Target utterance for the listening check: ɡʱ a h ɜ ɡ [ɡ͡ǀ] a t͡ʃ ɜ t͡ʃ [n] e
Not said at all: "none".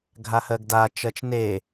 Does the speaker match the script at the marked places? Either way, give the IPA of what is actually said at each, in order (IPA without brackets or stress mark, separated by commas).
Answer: d, n